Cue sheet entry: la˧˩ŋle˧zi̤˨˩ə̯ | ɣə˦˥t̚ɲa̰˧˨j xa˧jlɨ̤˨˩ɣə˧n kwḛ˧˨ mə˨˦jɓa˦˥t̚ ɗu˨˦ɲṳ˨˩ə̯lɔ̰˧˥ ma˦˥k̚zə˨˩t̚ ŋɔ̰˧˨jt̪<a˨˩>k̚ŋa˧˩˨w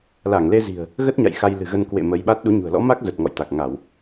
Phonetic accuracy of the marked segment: correct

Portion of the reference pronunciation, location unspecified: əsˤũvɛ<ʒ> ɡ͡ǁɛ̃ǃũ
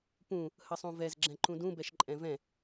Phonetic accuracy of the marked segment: incorrect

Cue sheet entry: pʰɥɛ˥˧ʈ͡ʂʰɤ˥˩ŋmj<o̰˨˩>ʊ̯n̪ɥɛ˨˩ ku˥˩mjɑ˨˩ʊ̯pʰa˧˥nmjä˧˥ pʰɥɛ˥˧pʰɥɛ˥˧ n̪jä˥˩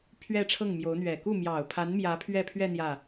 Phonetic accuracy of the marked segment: incorrect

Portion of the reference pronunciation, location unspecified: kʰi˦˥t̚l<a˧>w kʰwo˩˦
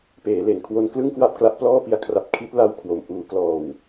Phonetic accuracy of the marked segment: correct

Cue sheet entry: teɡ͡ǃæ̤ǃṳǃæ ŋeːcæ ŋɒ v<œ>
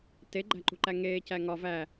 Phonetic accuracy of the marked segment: incorrect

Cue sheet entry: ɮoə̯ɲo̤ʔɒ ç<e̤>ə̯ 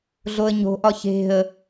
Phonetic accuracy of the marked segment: correct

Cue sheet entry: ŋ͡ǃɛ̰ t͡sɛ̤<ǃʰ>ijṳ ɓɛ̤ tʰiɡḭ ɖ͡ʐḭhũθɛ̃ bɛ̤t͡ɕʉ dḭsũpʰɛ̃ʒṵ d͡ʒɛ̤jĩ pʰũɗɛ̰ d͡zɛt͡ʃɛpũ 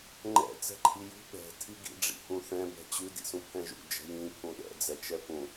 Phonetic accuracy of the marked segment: correct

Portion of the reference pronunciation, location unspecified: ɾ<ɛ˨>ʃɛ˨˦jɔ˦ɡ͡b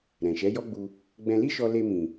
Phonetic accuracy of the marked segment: incorrect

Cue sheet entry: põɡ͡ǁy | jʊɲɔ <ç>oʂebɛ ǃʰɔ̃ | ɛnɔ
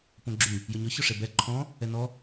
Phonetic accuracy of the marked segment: correct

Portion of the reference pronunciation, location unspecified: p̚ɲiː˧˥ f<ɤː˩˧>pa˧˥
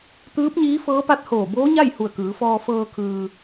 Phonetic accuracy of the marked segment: incorrect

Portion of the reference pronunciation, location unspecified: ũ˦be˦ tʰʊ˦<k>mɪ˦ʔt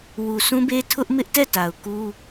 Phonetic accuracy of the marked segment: incorrect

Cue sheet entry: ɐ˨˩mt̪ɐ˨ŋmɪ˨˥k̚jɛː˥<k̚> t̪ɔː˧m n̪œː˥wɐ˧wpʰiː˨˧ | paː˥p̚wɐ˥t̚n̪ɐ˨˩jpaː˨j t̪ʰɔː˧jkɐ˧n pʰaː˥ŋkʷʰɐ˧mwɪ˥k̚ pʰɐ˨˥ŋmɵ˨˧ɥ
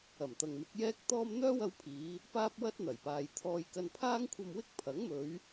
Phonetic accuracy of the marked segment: correct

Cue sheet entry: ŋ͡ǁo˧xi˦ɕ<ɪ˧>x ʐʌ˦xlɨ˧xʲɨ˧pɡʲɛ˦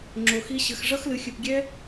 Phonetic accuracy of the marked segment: incorrect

